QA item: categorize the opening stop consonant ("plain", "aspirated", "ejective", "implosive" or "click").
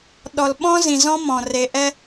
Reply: implosive